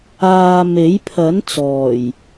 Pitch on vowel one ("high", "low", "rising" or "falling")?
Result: low